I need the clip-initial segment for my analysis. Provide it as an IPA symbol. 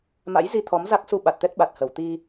m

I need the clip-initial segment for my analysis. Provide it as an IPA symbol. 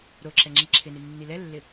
ɾ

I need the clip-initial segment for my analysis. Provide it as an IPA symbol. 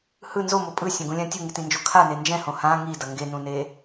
h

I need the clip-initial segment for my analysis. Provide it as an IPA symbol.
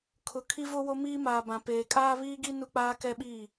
kʰ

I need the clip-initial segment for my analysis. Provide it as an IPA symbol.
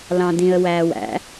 l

